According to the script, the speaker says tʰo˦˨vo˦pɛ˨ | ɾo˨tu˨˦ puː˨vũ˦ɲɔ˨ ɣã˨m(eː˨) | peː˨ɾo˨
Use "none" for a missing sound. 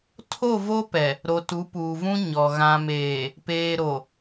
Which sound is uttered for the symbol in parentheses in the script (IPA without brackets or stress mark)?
eː˨